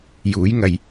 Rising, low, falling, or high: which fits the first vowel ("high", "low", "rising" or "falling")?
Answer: rising